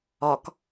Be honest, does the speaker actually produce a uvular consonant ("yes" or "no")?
no